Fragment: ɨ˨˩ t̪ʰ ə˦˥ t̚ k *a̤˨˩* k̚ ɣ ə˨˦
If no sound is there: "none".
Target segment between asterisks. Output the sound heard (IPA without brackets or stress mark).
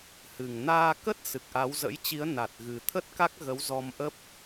a˦˥